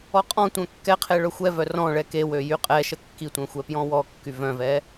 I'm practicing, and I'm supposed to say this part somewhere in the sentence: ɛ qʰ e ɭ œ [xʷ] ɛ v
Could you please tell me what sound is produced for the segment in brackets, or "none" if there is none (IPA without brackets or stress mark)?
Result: xʷ